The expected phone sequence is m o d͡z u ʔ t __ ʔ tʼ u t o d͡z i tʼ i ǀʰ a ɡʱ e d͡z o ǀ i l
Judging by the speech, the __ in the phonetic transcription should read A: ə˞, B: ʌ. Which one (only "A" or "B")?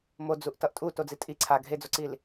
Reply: B